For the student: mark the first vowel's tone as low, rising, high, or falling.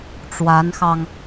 rising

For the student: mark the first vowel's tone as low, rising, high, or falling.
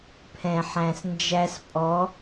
low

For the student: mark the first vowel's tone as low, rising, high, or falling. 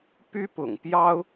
high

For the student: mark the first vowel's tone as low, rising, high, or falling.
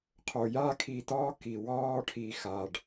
low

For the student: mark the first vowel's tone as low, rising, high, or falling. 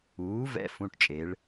rising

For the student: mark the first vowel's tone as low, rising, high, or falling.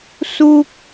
high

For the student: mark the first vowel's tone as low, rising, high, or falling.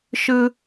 high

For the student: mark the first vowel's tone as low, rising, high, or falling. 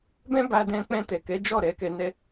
high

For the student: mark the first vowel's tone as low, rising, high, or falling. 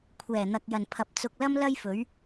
low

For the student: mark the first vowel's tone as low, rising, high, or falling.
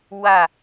falling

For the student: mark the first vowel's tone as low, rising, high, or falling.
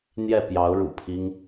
falling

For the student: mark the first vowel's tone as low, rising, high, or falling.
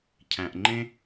low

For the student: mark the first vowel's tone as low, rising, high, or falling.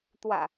low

